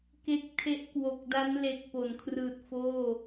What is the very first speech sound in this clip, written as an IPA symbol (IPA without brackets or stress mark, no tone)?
k